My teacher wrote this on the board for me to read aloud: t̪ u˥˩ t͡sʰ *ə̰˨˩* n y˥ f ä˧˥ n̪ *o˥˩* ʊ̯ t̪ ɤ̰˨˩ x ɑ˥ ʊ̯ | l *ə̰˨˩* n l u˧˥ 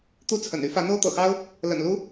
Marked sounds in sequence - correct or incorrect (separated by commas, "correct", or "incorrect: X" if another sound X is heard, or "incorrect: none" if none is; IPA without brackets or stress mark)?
correct, incorrect: o˥, correct